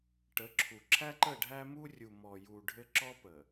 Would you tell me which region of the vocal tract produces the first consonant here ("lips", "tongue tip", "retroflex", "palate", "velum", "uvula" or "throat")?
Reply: retroflex